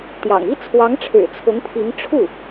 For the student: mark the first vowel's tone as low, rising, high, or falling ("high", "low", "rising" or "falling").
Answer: low